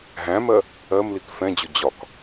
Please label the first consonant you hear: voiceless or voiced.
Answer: voiced